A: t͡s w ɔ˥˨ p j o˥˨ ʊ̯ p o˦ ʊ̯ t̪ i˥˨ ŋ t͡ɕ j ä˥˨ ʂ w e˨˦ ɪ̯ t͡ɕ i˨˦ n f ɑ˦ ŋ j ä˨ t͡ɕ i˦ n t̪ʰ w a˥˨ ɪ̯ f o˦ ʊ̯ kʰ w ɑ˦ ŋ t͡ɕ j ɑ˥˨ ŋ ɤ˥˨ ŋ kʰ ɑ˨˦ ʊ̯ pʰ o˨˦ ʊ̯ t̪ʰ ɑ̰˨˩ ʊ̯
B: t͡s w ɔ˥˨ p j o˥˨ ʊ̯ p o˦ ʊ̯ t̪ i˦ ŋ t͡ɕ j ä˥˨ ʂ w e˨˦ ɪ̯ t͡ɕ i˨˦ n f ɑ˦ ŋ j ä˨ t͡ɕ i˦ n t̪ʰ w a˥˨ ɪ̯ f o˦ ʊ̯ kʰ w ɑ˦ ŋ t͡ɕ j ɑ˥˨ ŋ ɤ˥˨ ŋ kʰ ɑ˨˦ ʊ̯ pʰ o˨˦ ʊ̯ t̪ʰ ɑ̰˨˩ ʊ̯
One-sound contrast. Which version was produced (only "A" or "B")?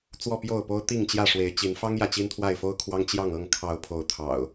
A